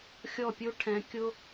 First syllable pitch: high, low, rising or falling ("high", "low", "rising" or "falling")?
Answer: falling